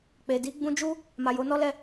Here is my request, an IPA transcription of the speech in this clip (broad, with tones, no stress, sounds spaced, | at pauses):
k͡p e˨ d i˨˦ ɡ͡b ũ˧ d͡ʒ u˦ | m a˨ j o˨˦ n ɔ˦ l ɛ˦˨